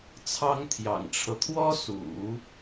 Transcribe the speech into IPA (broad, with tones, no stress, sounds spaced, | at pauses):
t͡sʰ ɑ˥ ŋ t̪ʰ j ɑ̰˨˩ ŋ ʈ͡ʂʰ ɤ˦ t̪ʰ w ɔ˥ s ṵ˨˩˦